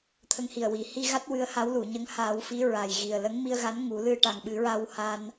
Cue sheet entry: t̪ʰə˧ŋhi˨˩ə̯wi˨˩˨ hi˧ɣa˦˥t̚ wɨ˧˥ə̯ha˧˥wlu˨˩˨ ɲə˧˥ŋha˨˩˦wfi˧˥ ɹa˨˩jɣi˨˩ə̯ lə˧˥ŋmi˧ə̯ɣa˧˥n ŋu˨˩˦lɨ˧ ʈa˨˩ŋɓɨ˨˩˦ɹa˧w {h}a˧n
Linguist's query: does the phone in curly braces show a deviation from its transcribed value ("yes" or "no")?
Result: no